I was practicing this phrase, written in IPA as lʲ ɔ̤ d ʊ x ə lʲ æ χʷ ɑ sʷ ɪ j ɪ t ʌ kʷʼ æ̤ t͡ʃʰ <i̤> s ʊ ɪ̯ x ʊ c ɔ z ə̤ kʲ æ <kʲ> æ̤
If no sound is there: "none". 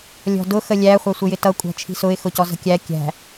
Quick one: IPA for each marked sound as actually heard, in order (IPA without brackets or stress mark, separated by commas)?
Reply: i̤, kʲ